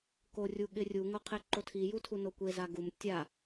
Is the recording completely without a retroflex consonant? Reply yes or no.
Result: yes